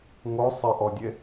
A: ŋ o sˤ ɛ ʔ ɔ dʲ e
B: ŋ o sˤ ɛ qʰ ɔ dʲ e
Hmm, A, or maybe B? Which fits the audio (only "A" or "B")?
A